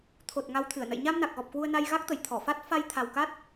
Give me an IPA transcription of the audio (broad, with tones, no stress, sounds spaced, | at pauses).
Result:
t̪ʰ o˨˩ t̚ ŋ a˧ w t̪ʰ ɨ˧˩ ə̯ n ə̰˧˨ j ɲ a˧ m n a˨˩ k̚ ɣ ɔ˨˩ p̚ k w u˧ ə̯ n a˧ j ɣ a˦˥ k̚ t̪ ə˧˩ j t̪ʰ ɔ˧˩ f a˦˥ t̚ f a˧ j t̪ʰ a˨˩ w k a˦˥ t̚